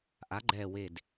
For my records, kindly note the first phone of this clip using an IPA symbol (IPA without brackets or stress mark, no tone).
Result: ʔ